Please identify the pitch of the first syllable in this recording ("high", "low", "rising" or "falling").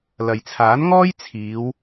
low